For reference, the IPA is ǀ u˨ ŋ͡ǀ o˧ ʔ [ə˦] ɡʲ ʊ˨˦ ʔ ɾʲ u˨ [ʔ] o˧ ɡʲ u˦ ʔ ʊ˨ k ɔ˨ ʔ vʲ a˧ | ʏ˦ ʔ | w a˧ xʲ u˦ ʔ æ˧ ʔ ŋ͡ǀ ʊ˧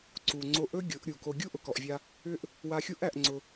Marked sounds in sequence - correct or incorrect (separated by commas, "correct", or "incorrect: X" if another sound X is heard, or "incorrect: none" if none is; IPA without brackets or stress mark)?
incorrect: ɵ˦, incorrect: k